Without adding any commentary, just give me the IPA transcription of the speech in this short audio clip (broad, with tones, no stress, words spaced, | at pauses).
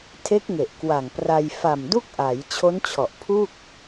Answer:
tʰe˦˥k̚ŋe˨˩ʔkwa˨˩ŋpra˧j fa˨˩mdu˥˩k̚ʔa˩˦j t͡ɕʰo˦˥nt͡ɕʰɔ˨˩ʔpʰu˥˩k̚